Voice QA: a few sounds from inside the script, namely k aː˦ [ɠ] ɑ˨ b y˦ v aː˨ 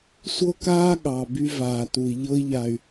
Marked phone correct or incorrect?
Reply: correct